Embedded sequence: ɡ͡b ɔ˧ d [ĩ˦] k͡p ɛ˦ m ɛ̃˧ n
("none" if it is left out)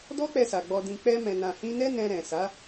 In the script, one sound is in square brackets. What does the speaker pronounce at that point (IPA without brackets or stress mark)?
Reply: ĩ˧